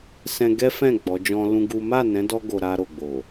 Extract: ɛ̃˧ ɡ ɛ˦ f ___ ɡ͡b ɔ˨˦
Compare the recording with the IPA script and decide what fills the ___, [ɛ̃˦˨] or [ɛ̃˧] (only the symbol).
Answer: ɛ̃˦˨